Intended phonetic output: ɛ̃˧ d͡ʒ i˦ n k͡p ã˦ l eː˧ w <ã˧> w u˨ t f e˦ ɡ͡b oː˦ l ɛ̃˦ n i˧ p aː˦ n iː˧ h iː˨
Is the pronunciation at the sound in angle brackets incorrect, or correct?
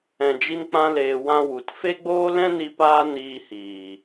correct